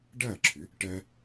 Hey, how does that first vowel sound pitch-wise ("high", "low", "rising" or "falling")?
falling